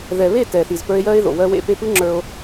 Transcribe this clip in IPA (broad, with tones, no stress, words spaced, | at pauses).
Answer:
ðɛ˨βe˦˨ tɛ˨θi˨z pə˞˧e̯jɜ˧e̯ðo̰˨ wɜ˧wḛ˧pe˧ pɯ˦ŋ͡ǁə˞˧o̯